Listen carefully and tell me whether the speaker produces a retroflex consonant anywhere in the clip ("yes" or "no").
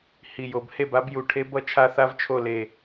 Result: yes